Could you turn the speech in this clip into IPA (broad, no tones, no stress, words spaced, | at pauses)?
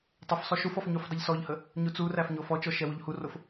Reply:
tˤəfsˤo ʃufɔf ɲufdˤəʎsɔʎhə | ɲut͡suræf ɲofɔt͡ʃɔ ʃɛwuʎhurof